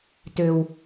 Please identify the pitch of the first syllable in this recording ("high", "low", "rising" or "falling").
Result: low